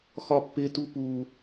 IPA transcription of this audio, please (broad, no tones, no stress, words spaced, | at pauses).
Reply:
xɒpːɪtu pu